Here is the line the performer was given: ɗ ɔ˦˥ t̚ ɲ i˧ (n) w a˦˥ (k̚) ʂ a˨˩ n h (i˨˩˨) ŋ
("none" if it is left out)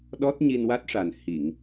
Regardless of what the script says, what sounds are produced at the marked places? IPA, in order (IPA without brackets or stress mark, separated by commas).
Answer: n, t̚, i˨˩˨